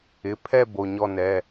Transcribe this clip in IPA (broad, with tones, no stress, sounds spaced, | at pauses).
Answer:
ɪ˩˧˩ pʰ ɛ˦˨ b o˩˧˩ ɲ ɔ˦˨ n ɛ˩˧˩